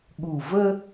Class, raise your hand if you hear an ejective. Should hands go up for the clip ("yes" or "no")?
no